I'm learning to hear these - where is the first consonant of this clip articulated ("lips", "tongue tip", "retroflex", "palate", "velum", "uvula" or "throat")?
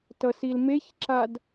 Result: tongue tip